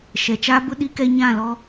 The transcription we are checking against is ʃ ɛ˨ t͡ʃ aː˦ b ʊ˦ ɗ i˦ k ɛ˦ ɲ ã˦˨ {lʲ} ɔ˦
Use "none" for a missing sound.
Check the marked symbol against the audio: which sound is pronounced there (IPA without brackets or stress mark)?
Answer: l